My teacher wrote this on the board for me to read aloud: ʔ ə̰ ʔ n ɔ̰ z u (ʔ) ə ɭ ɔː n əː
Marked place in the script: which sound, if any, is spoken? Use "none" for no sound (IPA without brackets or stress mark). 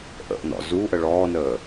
ʔ